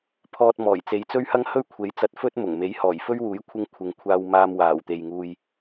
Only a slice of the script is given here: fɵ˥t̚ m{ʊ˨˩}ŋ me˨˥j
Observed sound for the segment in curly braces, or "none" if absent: ʊ˨˩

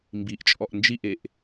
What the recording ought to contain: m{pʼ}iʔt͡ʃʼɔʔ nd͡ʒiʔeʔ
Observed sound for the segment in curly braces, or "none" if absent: b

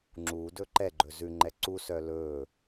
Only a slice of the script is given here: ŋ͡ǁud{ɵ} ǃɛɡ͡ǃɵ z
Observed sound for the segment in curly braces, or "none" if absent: ɵ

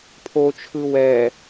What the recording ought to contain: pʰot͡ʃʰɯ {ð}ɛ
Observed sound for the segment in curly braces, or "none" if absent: w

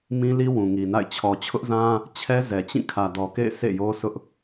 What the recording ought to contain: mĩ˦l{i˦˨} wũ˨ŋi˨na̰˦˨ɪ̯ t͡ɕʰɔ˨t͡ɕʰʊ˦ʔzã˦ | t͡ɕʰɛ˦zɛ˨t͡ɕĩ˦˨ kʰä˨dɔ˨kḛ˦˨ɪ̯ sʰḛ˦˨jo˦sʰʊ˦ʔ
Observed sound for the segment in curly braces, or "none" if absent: i˦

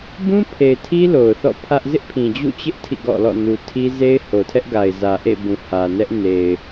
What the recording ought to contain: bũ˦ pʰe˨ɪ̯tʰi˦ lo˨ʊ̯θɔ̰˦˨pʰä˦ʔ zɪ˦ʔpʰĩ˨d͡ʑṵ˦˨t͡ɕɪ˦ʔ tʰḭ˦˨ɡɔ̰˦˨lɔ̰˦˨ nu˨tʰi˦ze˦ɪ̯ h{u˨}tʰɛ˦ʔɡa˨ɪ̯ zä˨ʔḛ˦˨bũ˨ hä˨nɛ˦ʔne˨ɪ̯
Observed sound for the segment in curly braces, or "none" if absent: o˨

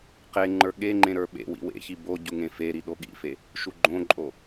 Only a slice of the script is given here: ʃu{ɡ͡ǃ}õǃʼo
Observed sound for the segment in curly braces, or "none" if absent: ɡ͡ǃ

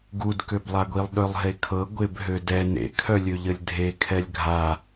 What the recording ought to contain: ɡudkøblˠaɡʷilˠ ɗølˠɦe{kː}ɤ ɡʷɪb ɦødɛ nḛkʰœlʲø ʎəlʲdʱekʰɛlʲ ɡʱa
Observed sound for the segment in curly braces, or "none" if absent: kʰ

